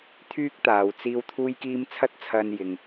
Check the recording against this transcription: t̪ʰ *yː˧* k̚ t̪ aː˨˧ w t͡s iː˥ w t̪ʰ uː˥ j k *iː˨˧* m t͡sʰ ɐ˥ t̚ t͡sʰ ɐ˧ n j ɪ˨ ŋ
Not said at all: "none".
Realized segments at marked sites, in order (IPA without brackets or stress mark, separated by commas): yː˥, iː˥